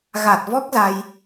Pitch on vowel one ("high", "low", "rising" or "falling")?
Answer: low